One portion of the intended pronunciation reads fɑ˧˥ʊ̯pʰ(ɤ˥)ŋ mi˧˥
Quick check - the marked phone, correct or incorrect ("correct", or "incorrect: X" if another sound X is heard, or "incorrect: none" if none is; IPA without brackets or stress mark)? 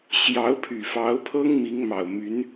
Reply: correct